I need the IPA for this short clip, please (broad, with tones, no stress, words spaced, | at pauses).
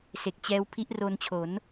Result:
se˨˩k̚t͡ɕɛː˦˥w pʰi˦˥ʔro˧nt͡ɕʰo˩˦n